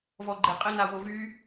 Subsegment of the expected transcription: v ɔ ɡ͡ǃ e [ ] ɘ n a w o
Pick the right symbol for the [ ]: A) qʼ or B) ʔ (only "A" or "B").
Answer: A